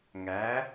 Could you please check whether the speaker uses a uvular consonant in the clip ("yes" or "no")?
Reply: no